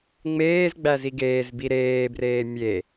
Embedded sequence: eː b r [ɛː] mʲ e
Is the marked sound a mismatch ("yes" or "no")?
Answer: yes